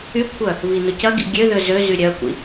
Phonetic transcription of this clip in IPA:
y kʷʰ œ | β i n ʊ c ɐ ɡ ḭ ɡʲ ø ð ø z ø z y ɾʲ œ kʷ ḭ

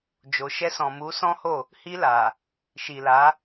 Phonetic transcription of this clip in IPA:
d͡ʒ o˨ ʃ ɛ˧ s ɔ̃˨ m u˨˦ s ɔ̃˦ h o˦˨ | h i˧ l a˨ | ʃ i˨ l a˨˦

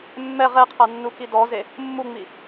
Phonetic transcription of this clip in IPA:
mː ɛ ʁ ɛ qʰ a nː u k i d ɔ z e | mː u ŋ͡m i

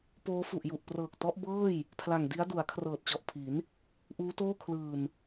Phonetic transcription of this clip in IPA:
p oː˦˥ f u˨˩ ʔ j u˨˩ ʔ p r ɤː˨˩ k̚ t ɔ˦˥ ʔ b ɤː˥˩ j | pʰ l a˨˩ ŋ d i˦˥ a̯ d u˩˦ a̯ kʰ r ɤː˨˩ t̚ t͡ɕ ɔ˨˩ ʔ pʰ i˩˦ n | ʔ uː˦˥ t oː˥˩ kʰ l ɯː˨˩ n

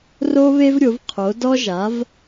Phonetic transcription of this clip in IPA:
r o˥ β e˥ v ɾʲ o˩˥ v qʰ o˩˥ d ɔ˥ ʒ a˩˥ v

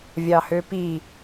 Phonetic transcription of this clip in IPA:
vʲ ɑ h ø p i

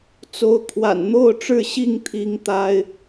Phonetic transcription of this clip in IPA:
t͡s o˨˦ ʊ̯ kʰ w a̰˨˩ n n̪ o˥˨ ʊ̯ ʈ͡ʂ ɻ̩˥˨ ɕ i˥˨ ŋ t̪ʰ i˨˦ ŋ t̪ a˦ ɪ̯

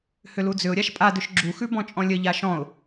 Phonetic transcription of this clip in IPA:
h ʏ l u d͡z ʏ ʊ̯ ɾʲ a ʃ pʼ a d ʏ ʃ ɡ͡ǁ u x ʉ b ɔ̃ t͡ʃʼ ɔ̃ lʲ ə ʎ a ʃ ɔ̃ ʊ̯

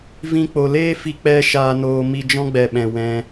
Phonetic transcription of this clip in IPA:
v ĩ˧ k͡p o˨ l eː˦ f i˧ k͡p ɛ˦ ʃ aː˧ n oː˧ m i˧ d͡ʒ ɔ̃˦ ɡ͡b ɛ˨ ɓ ɛ̃˨ w ɛ̃˧

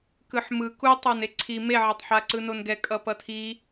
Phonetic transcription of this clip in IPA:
k ɯ ħ m ɯ k u tˤ a n e ǀʰ i m e ʕ a tˤ ħ a ǀ ɯ n o n ɡ ɛ kʼ ʌ p ʌ tʰ i

